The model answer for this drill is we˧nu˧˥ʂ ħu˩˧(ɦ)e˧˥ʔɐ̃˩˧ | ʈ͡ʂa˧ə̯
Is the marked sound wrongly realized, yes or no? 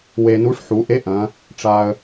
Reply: yes